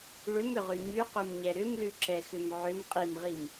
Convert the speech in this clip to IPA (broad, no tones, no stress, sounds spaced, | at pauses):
ɭ ʏ m ʏ ʁ ʉ ɲ ʉ q u m ɲ ɛ ɾ ʏ m l ʉ ǁ ɛ x ʏ m ʕ ʏ m qʼ i m ʁ i m